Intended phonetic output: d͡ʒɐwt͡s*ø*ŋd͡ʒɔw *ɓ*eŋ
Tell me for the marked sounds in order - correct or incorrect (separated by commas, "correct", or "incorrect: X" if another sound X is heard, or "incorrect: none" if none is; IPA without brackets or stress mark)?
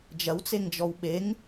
incorrect: e, correct